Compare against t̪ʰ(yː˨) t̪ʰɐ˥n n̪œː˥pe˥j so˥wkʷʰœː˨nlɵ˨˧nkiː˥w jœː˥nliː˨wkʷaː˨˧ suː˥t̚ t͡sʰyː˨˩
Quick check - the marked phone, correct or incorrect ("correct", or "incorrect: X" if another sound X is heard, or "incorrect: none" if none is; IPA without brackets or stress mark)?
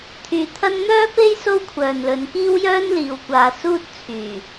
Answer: correct